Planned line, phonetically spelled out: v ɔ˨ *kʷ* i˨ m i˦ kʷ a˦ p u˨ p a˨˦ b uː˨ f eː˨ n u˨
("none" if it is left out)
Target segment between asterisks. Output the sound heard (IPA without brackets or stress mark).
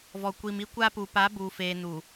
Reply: kʷ